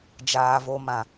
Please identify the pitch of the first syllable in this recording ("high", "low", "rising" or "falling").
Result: high